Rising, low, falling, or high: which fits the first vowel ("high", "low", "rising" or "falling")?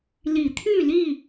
low